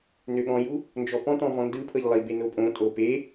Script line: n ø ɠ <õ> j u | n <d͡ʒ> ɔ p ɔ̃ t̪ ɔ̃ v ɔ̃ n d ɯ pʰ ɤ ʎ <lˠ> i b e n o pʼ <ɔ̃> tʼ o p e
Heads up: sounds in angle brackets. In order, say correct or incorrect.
incorrect, correct, correct, incorrect

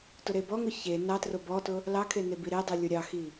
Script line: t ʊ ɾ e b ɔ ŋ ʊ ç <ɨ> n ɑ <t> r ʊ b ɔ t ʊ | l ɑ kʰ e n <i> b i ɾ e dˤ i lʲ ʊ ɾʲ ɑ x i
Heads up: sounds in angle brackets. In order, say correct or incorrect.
incorrect, correct, incorrect

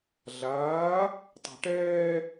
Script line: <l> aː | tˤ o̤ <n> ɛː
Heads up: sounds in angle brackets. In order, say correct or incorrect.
incorrect, incorrect

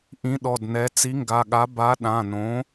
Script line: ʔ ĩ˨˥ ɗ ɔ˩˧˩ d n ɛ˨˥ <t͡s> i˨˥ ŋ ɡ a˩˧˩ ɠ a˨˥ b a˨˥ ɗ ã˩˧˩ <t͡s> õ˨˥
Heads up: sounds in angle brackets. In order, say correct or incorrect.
correct, incorrect

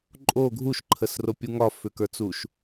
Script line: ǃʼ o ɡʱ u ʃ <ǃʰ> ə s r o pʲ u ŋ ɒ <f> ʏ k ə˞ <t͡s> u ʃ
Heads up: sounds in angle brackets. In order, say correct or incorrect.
correct, correct, correct

